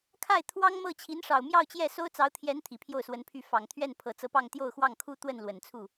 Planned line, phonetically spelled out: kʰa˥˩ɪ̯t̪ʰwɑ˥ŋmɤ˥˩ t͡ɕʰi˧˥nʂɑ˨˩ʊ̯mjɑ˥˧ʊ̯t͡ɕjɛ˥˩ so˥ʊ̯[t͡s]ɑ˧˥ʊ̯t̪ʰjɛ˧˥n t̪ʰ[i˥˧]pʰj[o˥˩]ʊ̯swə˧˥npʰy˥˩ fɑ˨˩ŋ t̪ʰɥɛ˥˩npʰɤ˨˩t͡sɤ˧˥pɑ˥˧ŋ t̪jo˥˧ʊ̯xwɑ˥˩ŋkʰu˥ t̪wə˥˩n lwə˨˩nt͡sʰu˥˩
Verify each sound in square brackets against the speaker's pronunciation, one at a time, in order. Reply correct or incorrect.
correct, incorrect, correct

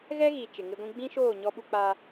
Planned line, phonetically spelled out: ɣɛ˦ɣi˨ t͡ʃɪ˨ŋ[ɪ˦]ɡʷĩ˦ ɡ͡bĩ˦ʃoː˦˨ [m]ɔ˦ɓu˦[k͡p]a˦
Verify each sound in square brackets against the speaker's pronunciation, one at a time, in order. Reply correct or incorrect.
correct, incorrect, correct

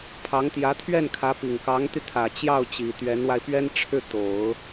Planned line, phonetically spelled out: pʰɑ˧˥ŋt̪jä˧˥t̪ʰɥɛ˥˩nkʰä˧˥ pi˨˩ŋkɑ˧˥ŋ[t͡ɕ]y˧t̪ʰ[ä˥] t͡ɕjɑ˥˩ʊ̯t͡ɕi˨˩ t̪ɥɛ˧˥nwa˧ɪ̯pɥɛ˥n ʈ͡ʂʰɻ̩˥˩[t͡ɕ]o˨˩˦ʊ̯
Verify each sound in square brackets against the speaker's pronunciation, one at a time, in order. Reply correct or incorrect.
incorrect, incorrect, incorrect

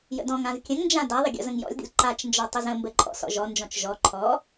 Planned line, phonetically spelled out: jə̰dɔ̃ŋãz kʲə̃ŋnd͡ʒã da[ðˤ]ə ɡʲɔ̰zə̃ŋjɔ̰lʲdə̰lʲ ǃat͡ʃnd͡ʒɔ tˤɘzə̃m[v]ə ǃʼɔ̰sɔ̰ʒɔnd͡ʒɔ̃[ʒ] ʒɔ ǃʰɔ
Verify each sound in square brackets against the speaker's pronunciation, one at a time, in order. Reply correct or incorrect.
correct, incorrect, incorrect

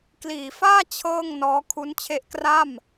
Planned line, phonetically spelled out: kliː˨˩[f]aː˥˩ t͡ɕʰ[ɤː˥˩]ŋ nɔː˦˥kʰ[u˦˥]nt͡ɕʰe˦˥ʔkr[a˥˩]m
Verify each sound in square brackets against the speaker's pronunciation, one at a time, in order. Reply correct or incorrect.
correct, correct, correct, correct

